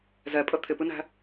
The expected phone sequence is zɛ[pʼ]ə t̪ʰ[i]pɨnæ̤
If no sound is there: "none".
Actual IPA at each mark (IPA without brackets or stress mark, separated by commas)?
pʼ, ɪ